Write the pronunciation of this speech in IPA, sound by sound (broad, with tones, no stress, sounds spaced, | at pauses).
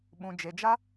ɓ ũ˨ d͡ʒ e˨ d͡ʒ a˦